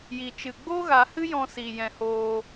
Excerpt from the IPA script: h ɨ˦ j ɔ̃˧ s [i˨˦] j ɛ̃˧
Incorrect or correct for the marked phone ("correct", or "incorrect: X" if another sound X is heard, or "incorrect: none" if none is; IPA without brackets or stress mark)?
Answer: incorrect: i˨